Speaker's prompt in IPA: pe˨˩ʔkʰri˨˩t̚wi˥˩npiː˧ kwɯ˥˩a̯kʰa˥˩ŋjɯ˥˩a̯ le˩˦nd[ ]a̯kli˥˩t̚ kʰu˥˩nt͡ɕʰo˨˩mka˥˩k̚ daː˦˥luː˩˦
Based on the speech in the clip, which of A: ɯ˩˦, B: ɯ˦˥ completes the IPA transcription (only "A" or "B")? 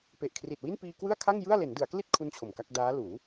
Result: A